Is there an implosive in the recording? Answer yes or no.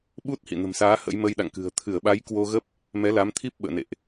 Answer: yes